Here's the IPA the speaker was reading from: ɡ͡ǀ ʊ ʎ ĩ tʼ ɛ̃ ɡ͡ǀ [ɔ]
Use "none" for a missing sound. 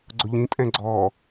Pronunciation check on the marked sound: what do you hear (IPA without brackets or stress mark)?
ɔ